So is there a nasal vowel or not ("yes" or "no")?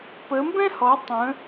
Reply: yes